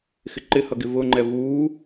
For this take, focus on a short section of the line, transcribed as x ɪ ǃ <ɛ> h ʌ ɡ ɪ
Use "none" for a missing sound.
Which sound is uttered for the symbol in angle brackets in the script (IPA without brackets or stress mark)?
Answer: ɪ